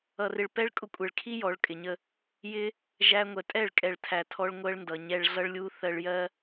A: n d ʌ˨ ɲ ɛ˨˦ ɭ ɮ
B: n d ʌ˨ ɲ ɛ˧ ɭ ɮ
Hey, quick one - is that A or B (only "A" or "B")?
B